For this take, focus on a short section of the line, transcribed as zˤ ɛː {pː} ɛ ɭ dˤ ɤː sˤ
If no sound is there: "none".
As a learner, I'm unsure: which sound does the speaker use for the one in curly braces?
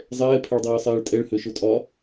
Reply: pʰ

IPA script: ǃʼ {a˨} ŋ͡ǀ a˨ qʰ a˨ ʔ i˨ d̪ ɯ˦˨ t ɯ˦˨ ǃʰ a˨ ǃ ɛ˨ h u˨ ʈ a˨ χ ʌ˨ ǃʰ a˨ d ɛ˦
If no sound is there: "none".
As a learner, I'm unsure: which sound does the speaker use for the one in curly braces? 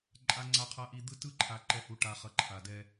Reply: a˨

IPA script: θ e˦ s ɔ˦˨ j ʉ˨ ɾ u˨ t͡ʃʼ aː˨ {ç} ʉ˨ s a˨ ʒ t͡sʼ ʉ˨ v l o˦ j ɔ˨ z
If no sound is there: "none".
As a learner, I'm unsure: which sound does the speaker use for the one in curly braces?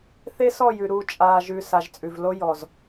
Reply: ʒ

